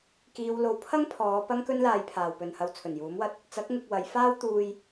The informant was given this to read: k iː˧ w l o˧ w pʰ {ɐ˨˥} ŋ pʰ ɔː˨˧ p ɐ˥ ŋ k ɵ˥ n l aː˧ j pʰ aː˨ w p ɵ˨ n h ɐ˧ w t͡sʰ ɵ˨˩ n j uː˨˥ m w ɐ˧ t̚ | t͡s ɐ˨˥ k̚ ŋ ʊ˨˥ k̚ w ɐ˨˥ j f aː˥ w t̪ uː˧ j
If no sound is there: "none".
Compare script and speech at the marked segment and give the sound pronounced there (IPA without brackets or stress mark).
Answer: ɐ˥